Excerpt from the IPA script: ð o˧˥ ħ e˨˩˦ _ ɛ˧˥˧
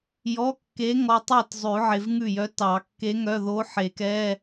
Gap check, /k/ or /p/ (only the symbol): k